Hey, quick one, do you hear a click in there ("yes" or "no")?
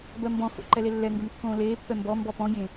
yes